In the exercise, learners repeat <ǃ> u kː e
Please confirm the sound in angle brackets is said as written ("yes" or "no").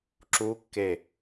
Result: no